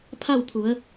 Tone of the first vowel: falling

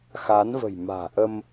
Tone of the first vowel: rising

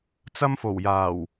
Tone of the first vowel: high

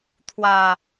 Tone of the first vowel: low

